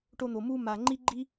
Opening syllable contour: high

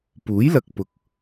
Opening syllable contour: rising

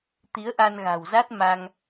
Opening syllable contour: rising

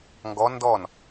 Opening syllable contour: rising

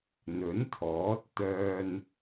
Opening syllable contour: rising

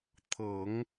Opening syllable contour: low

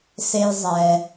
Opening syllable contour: high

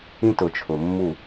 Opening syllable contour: high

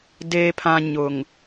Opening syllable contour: low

